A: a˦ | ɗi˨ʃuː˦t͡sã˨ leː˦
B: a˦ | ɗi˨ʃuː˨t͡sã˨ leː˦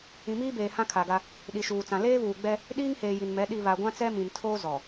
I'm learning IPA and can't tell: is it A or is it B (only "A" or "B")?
B